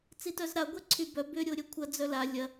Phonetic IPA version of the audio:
t͡sitœzɾa ɡʷɛǀʰybœ bʏ ɾʲoɾʲœkʷʰɐ d͡zœla lʲɐ

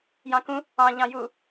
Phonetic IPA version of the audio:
jɑ̃kũ | ɑ̃ ʎɑ̃ju

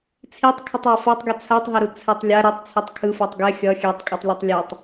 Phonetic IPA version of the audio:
t͡sʰitˤkʰɯtˤ afatˤɡe t͡sʰatˤɦeɾu t͡sʰɛtˤlʲa ɾetˤt͡sʰetˤ kʰɯfotˤ ɡɛ xʲʌ xʲɛtˤkʼɯtˤlʲʌtˤ lʲʌtˤ

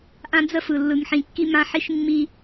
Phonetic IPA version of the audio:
ʔã˦d͡zə˦fɯ˨ lːɯ˨ŋħĩ˨kːi˦mã˦ ħi˦ʃmːi˦

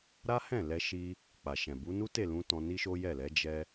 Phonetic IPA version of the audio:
ɾa˦hɛ̃˦˨lɛ˧ ʃi˧ | k͡pa˨ʃɛ̃˨ bu˨˦ nu˦te˦˨lũ˧ tɔ̃˧ni˦ʃo˦ jɛ˦˨lɛ˨˦ d͡ʒɛ˧

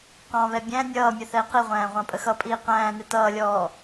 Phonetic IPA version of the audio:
qɑ̃βɛ bʲæ̃ nʲʌːmʲə θɛe̯qiʁʷæ̃ː ʁʷɑ̃pʼəxʌpʼiː qæ̃ːnɪ tʌːlʲɔː

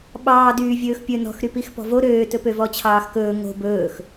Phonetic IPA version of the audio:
ɓɑːdyː vʲɵːxpʲɵ nɔ̤xɾypix pɔ̤vo ɾøːtɵ pøvɔt͡ɕʰɑːxkɵː ŋo̤ bɵːx

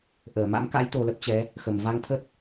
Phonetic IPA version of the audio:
ʔəː˧˩ ma̰˧˥mka̰˧˥j t̪o˧lə˦˥p̚t͡ɕɛ˨˦ | xə˧˩mva˧ŋt̪ʰə˦˥t̚

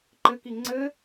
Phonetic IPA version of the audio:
ǃɘki ŋ͡ǀɘ

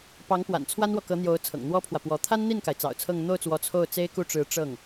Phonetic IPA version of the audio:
pɑ˧˥ŋpwa̰˨˩n t͡sʰwa˥nwɔ˨kɤ˧˥n̪jo˧˥ʊ̯ t͡sʰɤ̰˨˩ŋn̪wɔ˥pʰwä˨ pwɔ˧˥ t̪ʰa˥nn̪i˥˩nka˩ɪ̯ t͡sɑ̰˨˩ʊ̯t͡sʰɤ˥˧ŋ n̪o˥˩ʊ̯t͡swɔ˧˥ t͡sʰo˥˩ʊ̯ t͡se˥ɪ̯ku˥˩ʈ͡ʂɻ̩˧˥ ʈ͡ʂɤ˥˩ŋ

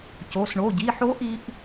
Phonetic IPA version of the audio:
co˩˧˩s ɳo˩˧˩ɟi˩˧˩ħo˧˥ʔi˧ʔ

